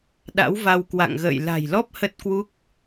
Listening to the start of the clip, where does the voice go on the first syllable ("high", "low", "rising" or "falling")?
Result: rising